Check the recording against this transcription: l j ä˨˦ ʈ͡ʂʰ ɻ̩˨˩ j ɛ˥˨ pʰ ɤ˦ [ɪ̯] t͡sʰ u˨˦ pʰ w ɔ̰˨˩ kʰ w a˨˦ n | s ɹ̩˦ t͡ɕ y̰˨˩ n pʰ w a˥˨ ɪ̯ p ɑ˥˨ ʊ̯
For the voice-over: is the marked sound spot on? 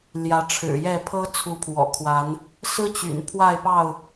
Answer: no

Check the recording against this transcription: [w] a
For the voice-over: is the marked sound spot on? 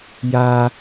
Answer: no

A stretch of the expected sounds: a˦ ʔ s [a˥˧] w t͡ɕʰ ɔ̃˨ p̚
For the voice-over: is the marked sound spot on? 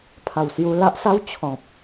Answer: no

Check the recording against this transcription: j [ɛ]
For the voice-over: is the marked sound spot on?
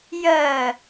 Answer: no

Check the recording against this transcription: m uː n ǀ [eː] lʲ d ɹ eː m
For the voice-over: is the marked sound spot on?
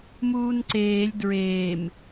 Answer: yes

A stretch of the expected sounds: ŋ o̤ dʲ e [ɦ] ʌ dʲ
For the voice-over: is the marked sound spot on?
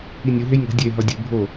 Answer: yes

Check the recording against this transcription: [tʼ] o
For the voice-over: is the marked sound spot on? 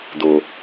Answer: no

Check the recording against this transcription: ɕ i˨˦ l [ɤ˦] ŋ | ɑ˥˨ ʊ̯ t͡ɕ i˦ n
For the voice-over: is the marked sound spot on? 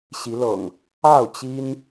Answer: no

